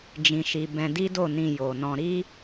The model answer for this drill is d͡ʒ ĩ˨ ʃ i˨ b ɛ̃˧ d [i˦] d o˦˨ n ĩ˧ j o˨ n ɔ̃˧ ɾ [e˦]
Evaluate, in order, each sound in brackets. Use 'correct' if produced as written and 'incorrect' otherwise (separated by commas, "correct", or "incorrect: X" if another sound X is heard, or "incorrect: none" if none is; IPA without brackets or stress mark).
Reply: correct, incorrect: i˦